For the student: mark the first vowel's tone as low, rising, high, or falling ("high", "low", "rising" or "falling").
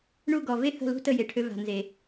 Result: falling